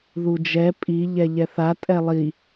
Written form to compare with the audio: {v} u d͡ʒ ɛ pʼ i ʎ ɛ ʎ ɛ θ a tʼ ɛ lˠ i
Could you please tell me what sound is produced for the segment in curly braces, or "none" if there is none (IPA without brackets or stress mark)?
ð